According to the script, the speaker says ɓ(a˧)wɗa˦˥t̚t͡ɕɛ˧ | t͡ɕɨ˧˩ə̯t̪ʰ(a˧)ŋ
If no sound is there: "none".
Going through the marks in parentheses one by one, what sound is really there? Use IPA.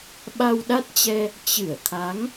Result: a˧, a˨˦

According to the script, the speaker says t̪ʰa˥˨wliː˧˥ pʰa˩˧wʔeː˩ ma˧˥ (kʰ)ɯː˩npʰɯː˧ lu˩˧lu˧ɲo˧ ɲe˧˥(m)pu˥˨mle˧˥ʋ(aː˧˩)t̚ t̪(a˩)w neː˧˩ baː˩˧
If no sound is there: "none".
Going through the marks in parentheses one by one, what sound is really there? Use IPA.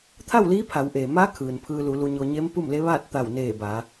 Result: kʰ, m, aː˥˨, a˧˩

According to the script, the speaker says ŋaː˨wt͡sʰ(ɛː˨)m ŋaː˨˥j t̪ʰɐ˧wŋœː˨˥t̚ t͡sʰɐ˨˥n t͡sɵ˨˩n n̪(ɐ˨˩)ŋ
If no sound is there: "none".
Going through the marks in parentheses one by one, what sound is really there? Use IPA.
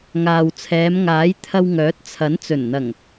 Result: ɛː˨˧, ɐ˨˩

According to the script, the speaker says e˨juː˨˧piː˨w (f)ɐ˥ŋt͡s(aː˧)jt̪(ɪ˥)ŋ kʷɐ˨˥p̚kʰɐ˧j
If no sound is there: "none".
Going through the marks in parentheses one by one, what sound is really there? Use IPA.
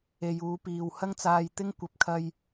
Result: h, aː˧, ɪ˥

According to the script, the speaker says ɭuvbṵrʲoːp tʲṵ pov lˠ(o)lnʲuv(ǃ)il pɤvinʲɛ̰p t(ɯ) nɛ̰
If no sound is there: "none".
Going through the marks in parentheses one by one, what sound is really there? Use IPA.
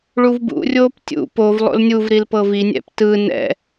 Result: o̰, ɾ, ɯ

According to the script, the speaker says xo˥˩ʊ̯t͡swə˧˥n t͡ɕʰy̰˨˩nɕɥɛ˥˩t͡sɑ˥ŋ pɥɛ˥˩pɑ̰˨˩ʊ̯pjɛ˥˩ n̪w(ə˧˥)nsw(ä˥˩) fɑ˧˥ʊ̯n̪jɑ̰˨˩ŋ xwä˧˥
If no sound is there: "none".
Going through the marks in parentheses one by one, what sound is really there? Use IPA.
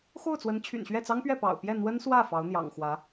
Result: ə˥, ä˥˩

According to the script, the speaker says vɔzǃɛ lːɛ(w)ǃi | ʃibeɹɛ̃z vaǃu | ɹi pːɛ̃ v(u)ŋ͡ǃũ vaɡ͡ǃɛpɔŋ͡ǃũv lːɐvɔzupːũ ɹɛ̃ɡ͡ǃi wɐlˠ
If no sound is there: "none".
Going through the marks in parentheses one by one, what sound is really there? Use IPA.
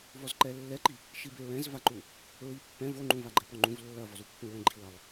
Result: none, o

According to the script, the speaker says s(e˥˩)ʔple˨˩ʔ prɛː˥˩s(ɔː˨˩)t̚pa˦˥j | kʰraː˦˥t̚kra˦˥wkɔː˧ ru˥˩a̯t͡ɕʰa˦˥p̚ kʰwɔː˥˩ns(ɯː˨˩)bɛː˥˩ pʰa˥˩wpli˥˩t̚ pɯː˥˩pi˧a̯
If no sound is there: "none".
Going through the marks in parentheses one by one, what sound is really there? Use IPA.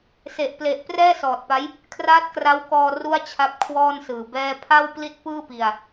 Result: e˨˩, ɔː˨˩, ɯː˨˩

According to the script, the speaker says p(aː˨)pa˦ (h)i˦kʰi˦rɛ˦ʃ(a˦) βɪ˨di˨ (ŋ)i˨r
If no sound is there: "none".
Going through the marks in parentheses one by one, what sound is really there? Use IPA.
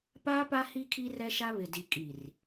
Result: aː˦, h, a˦, kʼ

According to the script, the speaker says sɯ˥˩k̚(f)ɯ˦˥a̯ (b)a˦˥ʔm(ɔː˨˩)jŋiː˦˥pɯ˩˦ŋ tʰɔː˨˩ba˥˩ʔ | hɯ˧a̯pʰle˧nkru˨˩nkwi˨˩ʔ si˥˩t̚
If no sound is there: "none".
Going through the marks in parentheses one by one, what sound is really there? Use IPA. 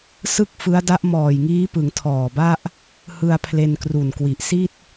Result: f, d, ɔː˨˩

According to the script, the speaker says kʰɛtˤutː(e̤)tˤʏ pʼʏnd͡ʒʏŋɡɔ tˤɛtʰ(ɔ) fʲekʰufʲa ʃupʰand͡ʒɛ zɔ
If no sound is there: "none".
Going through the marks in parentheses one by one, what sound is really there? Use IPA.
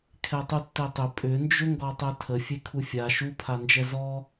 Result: e, ə

